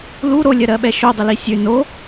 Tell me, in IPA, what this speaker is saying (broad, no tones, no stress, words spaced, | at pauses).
lu ɾolʲɜɾɜɓɛ ʃodˤʊli sʲø no